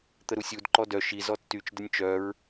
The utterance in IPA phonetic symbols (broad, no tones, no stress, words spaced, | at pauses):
t̪əɾusʲud ǃɔdœ ʃi zɔtːyt͡ʃ dənʲt͡ʃœɹ